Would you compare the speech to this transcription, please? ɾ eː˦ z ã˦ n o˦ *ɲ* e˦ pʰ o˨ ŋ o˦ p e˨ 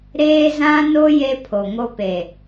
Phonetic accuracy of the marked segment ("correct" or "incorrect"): incorrect